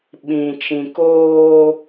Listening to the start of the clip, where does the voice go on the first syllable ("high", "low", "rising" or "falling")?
low